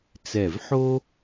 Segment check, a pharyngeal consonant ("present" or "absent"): present